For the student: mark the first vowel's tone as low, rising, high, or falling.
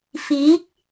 rising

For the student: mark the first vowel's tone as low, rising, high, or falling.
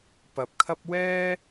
rising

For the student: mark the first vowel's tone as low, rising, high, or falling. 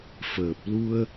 low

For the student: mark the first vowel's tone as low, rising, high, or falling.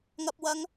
low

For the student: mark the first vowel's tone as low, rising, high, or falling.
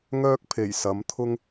high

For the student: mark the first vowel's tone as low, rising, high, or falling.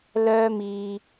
high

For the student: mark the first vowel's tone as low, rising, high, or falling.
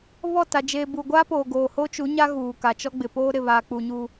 falling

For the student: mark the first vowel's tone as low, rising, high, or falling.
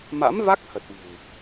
rising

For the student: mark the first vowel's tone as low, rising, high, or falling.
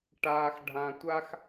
low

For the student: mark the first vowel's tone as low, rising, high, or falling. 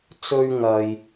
high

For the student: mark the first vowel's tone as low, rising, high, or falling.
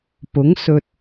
rising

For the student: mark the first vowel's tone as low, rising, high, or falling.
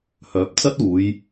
rising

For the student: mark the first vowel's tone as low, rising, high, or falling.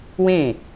falling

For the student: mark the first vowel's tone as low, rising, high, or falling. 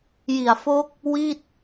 low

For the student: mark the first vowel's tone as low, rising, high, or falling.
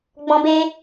high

